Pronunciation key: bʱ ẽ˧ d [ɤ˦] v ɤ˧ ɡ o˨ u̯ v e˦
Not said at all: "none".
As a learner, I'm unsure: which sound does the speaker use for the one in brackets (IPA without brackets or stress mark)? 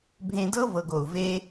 ɤ˦